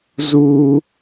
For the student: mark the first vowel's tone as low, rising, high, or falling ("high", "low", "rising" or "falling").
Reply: high